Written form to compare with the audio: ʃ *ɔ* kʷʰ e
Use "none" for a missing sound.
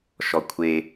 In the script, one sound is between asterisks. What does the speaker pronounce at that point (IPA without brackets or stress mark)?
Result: ɔ